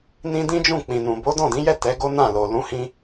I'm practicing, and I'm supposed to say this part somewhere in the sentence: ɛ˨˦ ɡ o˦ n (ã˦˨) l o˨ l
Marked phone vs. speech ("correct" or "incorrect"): correct